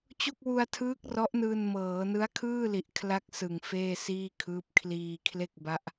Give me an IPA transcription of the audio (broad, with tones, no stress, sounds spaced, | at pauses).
t͡ɕ o˥˩ k̚ w u˧ a̯ tʰ ɯː˦˥ k̚ r ɔ˦˥ ʔ n ɯː˧ n m ɤː˩˦ n ɯ˦˥ a̯ kʰ ɯː˥˩ l i˨˩ ʔ kʰ l a˥˩ k̚ s ɯ˨˩ ŋ f eː˥˩ s iː˥˩ kʰ ɯː˦˥ p̚ kʰ l iː˧ kʰ l e˥˩ k̚ b a˦˥ ʔ